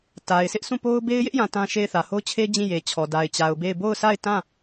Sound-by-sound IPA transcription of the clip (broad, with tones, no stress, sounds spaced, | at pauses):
t a˨ ɪ̯ s ɪ˦ ʔ s ũ˦˨ p o˦ ʊ̯ b e˦ ɪ̯ j ɪ˦ ʔ j ã˨ t ã˦ ʃ e˦˨ ɪ̯ θ ä˨ h o˦ ʊ̯ t͡ɕʰ e˦ d͡ʑ ĩ˦˨ j e˨ t͡ɕʰ ɔ˨ d a˨ ɪ̯ t͡ɕ a˨ ʊ̯ b e˦˨ ɪ̯ b o˦˨ ʊ̯ sʰ a˦˨ ɪ̯ t ã˦˨